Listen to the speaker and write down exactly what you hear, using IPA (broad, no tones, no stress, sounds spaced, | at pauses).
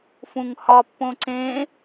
f ũ ŋ h ɒ pː õ ǀ ẽ